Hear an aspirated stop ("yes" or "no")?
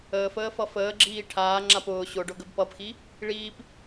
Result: yes